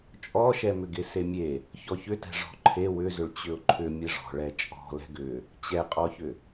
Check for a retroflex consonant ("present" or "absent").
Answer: present